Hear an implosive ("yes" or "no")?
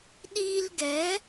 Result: yes